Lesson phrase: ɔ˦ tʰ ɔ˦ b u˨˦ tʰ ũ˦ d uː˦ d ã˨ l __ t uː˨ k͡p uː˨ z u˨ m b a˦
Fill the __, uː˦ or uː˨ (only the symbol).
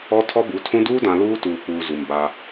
uː˦